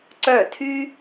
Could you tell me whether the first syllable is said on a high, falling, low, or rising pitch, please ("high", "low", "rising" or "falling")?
falling